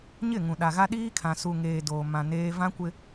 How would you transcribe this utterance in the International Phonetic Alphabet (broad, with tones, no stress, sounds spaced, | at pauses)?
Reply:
ɲ ɪ˦˨ ŋ ũ˨ ɗ a˨ ɣ a˦ ɗ iː˦ kʰ ã˨ s u˨ ŋ eː˨ d oː˨ m ã˨ n eː˦ v ã˦ kʷ ɪ˦